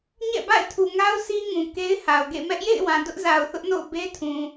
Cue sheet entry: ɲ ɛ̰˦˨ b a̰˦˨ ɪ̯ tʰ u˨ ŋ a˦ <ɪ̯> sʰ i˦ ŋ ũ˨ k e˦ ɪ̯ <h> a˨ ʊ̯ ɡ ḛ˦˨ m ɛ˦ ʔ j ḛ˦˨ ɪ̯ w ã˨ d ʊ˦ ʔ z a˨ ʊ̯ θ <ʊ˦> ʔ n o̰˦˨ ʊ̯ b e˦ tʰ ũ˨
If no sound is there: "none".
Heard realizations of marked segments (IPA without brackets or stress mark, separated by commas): ʊ̯, h, ʊ˦